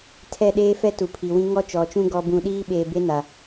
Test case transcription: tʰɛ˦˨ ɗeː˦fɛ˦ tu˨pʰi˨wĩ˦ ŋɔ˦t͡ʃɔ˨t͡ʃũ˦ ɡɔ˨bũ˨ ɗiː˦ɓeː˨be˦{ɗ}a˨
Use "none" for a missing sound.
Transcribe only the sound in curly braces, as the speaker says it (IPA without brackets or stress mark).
n